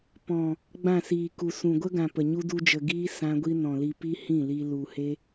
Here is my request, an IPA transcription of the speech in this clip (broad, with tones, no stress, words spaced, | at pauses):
pɔ̃˨ | ɡ͡bã˦˨siː˨ku˨ sũ˨ɡʷə˦ɡã˨ pə˨ɲu˦du˦d͡ʒə˧ ɡiː˦ sã˦ɡʷi˦ nɔ̃˨li˧pi˦ hĩ˦˨li˧ lu˨he˦